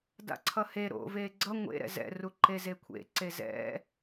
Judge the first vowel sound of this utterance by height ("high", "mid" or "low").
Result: low